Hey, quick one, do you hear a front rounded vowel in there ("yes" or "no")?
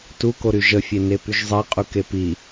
yes